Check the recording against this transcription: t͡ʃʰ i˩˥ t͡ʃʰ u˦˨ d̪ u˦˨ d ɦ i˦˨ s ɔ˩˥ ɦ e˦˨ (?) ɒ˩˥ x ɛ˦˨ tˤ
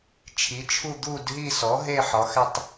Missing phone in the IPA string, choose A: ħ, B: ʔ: A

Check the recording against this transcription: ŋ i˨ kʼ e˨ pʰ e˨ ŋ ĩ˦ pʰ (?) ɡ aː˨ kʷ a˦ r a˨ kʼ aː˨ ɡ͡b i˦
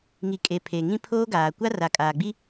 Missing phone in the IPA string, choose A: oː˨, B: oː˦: B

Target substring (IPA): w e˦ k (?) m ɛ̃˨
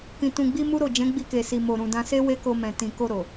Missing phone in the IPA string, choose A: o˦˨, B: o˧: B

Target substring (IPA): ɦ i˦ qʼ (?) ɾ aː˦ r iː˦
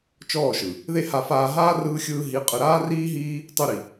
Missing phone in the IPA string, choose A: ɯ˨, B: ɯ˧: B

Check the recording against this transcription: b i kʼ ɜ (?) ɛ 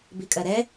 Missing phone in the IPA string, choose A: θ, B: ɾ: B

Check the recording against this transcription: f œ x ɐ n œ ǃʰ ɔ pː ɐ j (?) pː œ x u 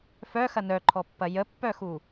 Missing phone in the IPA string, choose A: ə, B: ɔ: A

